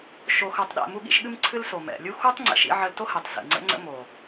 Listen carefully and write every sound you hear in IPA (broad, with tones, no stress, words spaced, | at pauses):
ʃo˧xɤ˧tˤɗɛ̰˦˨ mu˦ɠḭ˦ʃɠɨ˦mǀʰɨ˦l so˨mɛ̰˨lʲu˦ xu˦tˤ ŋ͡ǀɛ̰˨˦ʃḭ˧ʕə˧l to˦hɛ˨tˤ sḭ˨ŋ͡ǀə̰˦ŋ͡ǀə̰˦ mo˨